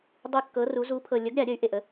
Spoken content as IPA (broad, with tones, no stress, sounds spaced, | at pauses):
dˤ ɯ˧ kː ɤ˩˥ r u˩˥ z u˩˥ pʰ ɤ˨˩ lʲ ə˩˥ ɡ ɾʲ a˨˩˦ ɾʲ ə˩˥ y̯ ʔ e˨˩ ʔ ə˩˥